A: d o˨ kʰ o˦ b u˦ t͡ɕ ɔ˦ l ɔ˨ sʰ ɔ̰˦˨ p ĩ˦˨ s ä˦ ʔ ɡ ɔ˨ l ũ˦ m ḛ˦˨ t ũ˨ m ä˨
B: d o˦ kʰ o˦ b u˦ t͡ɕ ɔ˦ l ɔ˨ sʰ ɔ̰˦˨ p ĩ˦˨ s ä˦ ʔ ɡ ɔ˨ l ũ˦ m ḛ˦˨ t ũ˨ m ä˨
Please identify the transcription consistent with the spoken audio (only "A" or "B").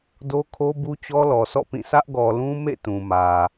B